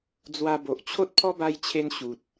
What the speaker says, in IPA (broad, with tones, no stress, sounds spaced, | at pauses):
d͡z w a˧ b o˨ ʔ t͡ɕʰ o˦ t̚ pʰ ɔ˦ b a˧ j t͡ɕʰ e˧ n ɕ u˨ t̚